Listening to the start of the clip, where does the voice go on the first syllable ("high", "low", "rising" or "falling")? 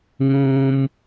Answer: high